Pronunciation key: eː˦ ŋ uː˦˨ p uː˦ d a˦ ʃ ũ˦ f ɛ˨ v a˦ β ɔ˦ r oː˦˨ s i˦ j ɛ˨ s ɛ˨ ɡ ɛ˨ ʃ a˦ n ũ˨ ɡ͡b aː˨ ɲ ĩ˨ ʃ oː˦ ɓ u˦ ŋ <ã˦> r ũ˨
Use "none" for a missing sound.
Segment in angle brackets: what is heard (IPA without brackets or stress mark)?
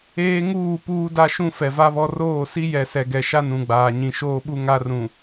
a˦